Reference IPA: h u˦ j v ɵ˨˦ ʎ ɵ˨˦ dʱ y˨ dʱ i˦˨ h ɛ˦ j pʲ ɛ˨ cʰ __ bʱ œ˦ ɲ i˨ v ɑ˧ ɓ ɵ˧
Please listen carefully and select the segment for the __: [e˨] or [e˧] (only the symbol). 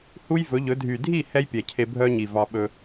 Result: e˧